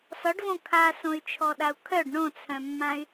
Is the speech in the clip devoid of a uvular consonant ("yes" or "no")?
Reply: yes